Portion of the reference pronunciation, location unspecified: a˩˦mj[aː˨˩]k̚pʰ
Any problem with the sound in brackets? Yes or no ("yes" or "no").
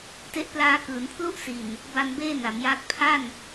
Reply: yes